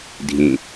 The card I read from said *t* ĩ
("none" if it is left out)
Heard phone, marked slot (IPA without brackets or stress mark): dʱ